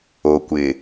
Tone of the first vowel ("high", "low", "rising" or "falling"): low